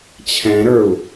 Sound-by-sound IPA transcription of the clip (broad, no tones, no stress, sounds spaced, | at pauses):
t͡ɕʰ ɛ̃ ɾ ə˞ u̯